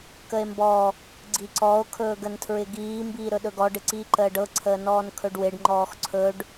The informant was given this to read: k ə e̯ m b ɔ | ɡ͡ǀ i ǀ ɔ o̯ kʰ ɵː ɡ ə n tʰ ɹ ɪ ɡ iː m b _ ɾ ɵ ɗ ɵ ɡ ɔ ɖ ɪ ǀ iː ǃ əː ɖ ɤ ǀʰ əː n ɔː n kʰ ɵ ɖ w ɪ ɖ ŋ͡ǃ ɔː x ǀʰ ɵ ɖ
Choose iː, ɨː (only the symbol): iː